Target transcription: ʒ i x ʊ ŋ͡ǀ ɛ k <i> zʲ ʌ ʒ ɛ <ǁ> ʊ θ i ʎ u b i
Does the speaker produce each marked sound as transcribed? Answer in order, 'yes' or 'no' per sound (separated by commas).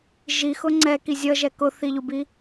yes, no